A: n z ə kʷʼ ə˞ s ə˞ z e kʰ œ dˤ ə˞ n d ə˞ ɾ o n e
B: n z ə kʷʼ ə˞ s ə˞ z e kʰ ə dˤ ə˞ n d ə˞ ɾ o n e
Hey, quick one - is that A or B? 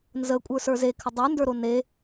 B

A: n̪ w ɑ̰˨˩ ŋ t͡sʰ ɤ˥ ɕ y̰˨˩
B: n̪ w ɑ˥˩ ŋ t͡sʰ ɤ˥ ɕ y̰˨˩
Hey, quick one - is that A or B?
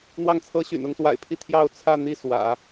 B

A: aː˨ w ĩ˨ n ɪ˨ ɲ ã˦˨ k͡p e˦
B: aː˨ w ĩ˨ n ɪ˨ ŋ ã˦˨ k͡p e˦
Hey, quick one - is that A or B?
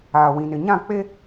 A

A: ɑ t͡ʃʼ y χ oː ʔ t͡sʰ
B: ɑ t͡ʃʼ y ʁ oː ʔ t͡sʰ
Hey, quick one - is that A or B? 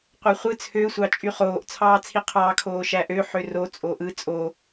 A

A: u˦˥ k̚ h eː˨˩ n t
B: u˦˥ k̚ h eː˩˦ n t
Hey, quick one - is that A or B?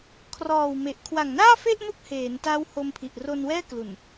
B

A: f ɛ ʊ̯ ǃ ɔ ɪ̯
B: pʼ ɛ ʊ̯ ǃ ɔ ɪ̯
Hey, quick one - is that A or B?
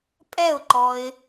B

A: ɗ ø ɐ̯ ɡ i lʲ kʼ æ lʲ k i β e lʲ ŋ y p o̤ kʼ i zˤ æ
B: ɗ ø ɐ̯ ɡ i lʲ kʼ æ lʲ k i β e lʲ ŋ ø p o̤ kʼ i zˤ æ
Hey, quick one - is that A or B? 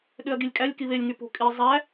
A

